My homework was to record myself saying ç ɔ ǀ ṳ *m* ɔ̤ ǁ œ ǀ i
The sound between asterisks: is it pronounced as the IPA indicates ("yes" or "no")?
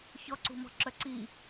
yes